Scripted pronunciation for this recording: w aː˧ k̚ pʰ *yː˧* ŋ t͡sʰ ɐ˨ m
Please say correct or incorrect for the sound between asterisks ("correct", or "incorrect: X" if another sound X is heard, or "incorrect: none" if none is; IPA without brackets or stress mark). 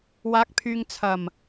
correct